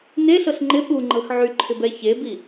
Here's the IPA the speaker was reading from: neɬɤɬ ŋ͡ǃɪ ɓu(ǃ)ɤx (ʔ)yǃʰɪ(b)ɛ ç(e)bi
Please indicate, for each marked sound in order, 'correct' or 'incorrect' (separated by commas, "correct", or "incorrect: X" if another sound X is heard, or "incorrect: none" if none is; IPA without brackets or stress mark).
incorrect: ŋ͡ǃ, incorrect: ʕ, correct, correct